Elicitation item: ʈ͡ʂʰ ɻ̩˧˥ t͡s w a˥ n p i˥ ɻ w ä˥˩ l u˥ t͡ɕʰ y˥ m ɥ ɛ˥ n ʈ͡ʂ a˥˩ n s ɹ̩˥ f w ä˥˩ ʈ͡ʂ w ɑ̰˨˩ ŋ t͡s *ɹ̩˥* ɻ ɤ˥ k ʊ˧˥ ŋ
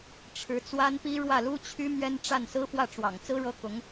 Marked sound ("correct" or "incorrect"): correct